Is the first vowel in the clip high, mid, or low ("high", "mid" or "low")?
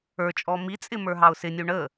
mid